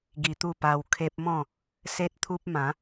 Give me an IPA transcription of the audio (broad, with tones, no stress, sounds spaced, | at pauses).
ɡ i˧ t̪ u˥˧ p a˧ w kʰ e˦ p̚ m ɔ̃˥˧ | s e˦ t̚ t̪ʰ u˦ p̚ m ã˨˦